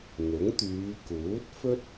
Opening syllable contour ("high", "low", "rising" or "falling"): rising